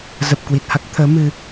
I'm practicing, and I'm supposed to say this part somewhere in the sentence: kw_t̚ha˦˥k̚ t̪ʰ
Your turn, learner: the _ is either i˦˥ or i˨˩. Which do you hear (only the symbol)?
i˨˩